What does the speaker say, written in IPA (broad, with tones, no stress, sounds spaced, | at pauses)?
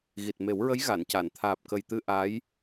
ɣ i˨˩ t̚ m e˨˩˦ w ɹ ə˧˥ j ɣ a˨˩˨ n c a˨˩˨ n t̪ʰ aː˨˩ p̚ k ə˨˩ j t̪ ɨ˧ ʔ a˧˥ j